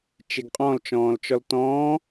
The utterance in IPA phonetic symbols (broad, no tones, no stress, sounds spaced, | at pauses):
t͡ʃ e ɡ qʼ ɔ̃ l t͡ʃ ɔ̃ː l t͡ʃ ɔ l t ɔ̃ː